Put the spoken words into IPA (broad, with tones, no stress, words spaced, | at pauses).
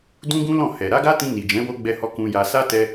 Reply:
dũ˦ɡũ˦lɔ̃˦˨ hɛ˨ ɾa˨˦ɡa˦tĩ˧ni˨ d͡ʒɛ̃˨˦ wo˦ɡ͡bɛ˦hɔ˦ kũ˧ja˧ sa˦tɛ˧